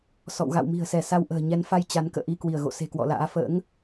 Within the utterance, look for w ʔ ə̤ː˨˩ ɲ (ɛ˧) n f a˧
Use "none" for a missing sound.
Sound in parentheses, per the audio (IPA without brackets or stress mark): ɛ˨˦